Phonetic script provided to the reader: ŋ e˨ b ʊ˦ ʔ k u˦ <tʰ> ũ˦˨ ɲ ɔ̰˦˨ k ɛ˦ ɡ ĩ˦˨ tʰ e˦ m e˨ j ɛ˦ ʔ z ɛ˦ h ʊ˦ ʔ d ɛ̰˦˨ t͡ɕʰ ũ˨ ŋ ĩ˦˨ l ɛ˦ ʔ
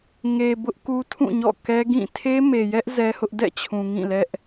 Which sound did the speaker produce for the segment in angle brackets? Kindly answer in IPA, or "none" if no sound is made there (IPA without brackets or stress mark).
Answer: tʰ